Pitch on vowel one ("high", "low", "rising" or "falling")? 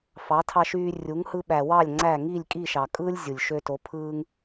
rising